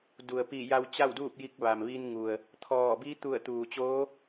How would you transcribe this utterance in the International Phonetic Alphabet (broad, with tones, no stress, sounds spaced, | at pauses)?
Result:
d u˩ ə̯ p i˧˩ j a˧ w t͡ɕ a˥˨ w d uː˥˨ p̚ j i˧ k̚ ʋ a˩ m ʋ i˧ n ŋ u˩ ə̯ | t̪ʰ ɔː˧˩ b i˧˥ t̪ u˧˩ ə̯ t̪ uː˩ t͡ɕ oː˧˥